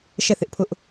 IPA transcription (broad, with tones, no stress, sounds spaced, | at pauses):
ʃ ɛ˦˨ θ ɪ˦ ʔ pʰ ʊ˦ ʔ